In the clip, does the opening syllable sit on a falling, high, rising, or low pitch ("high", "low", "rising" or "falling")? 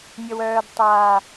low